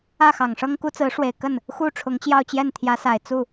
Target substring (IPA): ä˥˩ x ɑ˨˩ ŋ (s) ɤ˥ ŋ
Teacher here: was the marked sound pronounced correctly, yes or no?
no